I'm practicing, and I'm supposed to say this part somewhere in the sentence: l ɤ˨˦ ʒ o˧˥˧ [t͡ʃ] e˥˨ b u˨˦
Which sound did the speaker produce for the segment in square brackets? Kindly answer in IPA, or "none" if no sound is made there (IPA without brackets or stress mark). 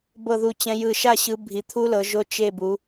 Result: t͡ʃ